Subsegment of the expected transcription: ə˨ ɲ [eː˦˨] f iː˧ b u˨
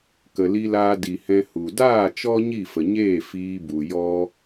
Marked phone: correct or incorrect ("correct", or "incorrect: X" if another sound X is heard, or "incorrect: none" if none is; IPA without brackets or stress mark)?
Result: correct